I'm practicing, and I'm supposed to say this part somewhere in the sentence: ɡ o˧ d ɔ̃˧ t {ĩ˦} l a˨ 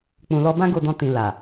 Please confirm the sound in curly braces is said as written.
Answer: no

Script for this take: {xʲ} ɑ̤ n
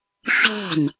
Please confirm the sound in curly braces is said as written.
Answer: no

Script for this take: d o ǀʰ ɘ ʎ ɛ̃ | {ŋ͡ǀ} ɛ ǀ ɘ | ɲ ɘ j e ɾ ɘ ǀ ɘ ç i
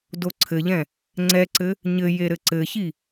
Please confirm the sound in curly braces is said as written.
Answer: yes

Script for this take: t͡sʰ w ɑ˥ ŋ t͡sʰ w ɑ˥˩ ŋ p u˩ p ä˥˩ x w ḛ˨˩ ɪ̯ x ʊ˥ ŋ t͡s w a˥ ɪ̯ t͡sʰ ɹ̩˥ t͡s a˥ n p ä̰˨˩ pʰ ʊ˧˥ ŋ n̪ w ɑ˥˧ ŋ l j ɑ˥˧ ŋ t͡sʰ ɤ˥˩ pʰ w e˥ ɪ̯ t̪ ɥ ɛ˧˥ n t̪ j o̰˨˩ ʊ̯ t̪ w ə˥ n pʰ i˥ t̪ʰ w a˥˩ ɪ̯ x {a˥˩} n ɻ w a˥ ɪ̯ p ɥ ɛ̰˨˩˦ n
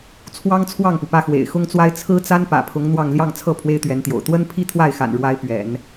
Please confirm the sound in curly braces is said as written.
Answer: no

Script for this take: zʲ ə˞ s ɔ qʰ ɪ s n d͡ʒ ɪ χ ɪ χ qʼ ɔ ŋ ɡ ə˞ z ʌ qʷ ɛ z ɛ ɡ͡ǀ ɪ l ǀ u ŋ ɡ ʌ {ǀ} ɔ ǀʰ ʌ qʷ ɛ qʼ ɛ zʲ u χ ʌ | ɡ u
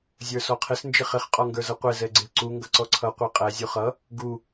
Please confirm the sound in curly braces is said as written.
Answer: yes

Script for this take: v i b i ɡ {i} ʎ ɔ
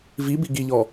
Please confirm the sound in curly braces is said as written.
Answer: yes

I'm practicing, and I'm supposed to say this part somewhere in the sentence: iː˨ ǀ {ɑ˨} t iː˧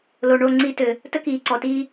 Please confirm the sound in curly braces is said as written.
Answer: no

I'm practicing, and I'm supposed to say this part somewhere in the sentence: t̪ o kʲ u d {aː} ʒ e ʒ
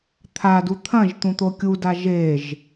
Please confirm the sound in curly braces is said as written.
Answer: no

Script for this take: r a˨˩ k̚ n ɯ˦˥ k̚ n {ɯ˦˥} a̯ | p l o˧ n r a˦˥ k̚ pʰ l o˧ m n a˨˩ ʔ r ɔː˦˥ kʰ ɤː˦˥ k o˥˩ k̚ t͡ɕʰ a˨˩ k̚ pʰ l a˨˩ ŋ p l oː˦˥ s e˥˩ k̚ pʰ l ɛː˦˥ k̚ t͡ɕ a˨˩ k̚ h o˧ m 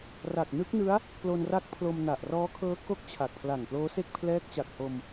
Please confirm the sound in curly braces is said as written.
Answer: yes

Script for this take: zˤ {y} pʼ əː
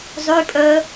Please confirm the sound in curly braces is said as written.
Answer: yes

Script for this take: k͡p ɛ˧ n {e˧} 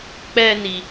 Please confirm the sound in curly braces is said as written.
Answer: no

